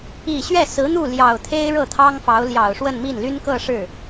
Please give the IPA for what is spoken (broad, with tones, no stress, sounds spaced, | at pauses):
i˨˩ ɕ ɥ ɛ˥˩ s ɹ̩˧˥ n̪ u˥˩ l j ɑ˨˩ ʊ̯ t̪ʰ e˥ ɪ̯ ɻ ɤ˥˩ t̪ʰ ɑ˥ ŋ f ɑ˧˥ ʊ̯ l j ɑ˨˩ ʊ̯ ʂ w ə˥˧ n m i˥˩ n l y˥ n k ɤ˥˧ ʂ ɻ̩˥˩